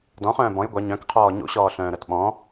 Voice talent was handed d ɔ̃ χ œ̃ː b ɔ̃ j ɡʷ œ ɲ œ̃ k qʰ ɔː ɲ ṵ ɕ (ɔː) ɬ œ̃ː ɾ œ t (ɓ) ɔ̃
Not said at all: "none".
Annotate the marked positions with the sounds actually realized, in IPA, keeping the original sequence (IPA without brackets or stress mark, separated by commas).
ɔː, ɓ